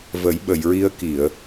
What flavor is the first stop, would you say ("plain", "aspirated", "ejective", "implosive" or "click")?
implosive